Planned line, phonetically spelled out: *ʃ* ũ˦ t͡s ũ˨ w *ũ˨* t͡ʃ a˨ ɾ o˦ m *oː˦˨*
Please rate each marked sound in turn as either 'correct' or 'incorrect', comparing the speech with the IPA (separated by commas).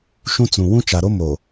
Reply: correct, incorrect, incorrect